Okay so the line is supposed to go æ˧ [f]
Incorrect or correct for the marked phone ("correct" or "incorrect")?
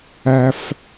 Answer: correct